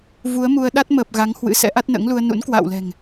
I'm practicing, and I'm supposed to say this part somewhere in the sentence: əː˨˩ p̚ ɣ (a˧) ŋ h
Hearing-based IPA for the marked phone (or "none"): a˨˦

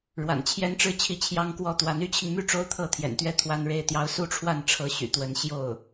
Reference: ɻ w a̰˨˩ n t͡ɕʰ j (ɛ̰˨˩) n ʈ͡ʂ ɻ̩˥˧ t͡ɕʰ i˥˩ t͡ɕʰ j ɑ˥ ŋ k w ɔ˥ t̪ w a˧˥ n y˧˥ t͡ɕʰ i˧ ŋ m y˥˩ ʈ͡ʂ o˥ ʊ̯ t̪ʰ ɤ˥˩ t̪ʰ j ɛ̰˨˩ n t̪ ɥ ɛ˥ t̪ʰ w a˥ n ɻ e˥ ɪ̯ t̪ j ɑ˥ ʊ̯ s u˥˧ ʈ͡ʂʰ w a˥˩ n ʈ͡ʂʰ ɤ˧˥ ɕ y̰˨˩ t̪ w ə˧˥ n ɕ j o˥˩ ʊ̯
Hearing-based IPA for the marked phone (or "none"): ɛ˥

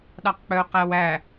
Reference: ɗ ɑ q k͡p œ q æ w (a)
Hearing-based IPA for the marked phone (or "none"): æ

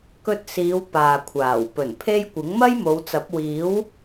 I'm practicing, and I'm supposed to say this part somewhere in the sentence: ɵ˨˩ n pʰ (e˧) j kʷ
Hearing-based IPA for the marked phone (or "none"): e˧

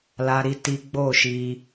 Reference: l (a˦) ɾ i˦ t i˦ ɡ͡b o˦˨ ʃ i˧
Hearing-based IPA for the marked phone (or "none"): a˦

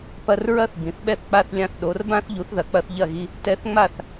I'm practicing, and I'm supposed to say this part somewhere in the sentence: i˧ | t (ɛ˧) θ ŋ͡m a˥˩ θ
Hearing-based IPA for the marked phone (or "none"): ɛ˧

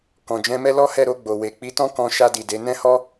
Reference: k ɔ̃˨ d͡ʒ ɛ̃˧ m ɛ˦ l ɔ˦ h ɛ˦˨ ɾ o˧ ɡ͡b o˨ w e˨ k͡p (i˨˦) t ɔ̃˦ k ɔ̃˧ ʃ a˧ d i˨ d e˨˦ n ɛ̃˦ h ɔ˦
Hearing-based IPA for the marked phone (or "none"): i˨˦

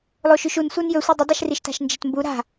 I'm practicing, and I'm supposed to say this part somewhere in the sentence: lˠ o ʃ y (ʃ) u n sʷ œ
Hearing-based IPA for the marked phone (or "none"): ʃ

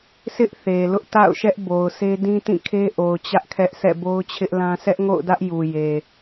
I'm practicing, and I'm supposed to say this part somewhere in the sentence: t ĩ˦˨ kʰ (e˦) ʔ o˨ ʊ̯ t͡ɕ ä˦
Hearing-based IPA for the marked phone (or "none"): e˦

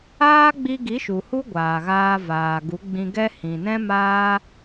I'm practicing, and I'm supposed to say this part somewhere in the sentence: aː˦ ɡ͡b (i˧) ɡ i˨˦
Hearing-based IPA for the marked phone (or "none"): i˧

